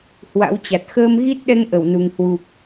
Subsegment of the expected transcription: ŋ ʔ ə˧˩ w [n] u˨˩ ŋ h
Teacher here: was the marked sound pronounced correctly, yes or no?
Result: yes